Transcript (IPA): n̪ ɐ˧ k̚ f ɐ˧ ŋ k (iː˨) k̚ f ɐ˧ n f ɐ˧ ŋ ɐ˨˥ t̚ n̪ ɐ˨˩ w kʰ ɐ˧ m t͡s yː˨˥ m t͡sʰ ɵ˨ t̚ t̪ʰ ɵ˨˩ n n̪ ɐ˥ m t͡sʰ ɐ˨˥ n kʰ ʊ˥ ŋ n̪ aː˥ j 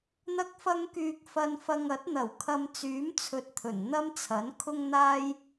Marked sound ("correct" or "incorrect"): incorrect